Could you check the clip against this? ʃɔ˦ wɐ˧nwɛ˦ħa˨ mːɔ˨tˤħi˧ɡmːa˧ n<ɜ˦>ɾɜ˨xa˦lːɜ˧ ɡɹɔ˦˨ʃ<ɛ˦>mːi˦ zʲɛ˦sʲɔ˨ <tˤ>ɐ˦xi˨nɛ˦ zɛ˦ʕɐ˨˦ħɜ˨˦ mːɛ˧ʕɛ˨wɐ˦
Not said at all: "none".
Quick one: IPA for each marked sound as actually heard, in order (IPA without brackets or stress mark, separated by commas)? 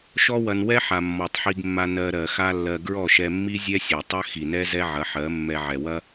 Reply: ɜ˧, ɛ˧, tˤ